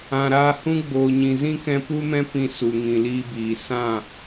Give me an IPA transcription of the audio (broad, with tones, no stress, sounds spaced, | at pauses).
ã˨ ɾ aː˧ h ũ˦ ɡ͡b oː˨ ɲ ĩ˨ z ĩ˦ k ɛ̃˧ p u˦ m ɛ̃˦ p ĩ˧ s u˨ ŋ ĩ˨ l iː˧ b iː˨ s ã˦˨